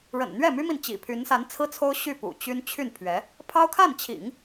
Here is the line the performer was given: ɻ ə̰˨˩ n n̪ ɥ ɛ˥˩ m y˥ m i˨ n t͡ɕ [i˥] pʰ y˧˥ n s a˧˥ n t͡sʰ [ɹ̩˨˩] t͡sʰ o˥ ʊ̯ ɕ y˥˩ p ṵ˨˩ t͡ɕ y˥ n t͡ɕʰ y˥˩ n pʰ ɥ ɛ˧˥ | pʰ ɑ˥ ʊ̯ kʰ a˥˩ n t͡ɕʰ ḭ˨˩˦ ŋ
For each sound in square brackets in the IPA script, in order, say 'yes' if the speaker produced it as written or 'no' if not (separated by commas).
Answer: no, no